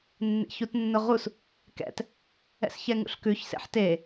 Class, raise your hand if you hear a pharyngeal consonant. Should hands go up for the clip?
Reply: yes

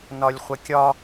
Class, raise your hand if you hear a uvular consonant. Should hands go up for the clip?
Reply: yes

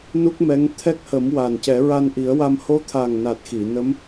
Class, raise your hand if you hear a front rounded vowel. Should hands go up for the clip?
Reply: no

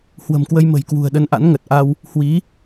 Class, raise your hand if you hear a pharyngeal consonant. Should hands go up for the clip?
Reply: no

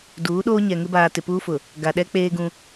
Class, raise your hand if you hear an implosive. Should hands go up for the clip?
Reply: yes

